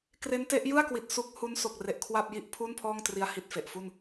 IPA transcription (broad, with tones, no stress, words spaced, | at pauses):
kre˦˥nte˦˥ʔ jɯ˥˩a̯kwi˨˩t̚ su˦˥k̚ hu˦˥n so˨˩k̚re˨˩ʔ kʰwa˥˩p̚ji˥˩ʔ pʰuː˥˩npʰɔː˥˩ŋtri˧a̯ hi˨˩t̚ fe˨˩ʔfu˥˩n